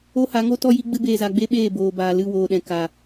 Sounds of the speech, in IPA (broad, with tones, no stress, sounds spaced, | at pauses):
o˦ h a˨˦ ŋ o˦ t ɔ˦ j i˦ ɡ͡b ɨ˦ b eː˧ z a˧ ɡ͡b e˦ ɓ eː˦˨ b oː˨ b aː˨ l ɨ˦˨ w oː˨ ɗ ɛ̃˨ k a˨